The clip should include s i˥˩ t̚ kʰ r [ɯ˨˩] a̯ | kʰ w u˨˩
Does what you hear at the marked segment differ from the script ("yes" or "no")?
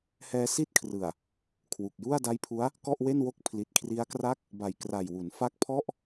no